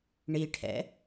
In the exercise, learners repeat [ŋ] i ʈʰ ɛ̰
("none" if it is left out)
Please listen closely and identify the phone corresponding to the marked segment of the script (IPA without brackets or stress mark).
ɳ